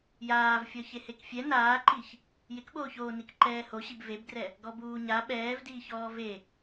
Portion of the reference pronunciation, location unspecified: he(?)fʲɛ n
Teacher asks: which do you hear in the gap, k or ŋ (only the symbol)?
k